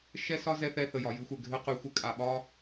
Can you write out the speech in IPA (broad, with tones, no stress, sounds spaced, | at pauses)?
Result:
ʃ ɛ˥ s ɒ˥ z ɛ˥ θ ɛ˥ θ ə˧ j ɒ˧ j ɨ˥ xʷ ɛ˧ ɡʱ ɘ˥ q y˧ xʷ ɘ˥ kʼ a˧ ɓ ɒ˥